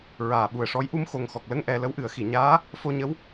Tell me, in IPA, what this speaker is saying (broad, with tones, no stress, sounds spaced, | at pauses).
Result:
ɹ aː˨˩ ɓ u˨˩ ə̯ ʂ ɔ˧˥ j ʔ u˧ m x o˨˩ ŋ x ɔ˨˩ k̚ l ə˧ ŋ ʔ ɛ˧ l ə˧˥ w ʔ ɨ˨˩˦ ə̯ x i˨˩˨ ɲ aː˧˥ | f o˧ ɲ ə˧˥ w